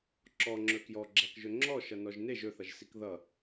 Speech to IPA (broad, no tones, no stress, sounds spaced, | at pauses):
ǁ ɔ ŋ͡ǁ ɵ k j ɔ ɡ͡ǁ a k ʒ ɵ ŋ͡ǁ ɔ ʃ ʌ n ɔ ʒ n e ʒ ɵ θ ʌ ʒ s i k ð ʌ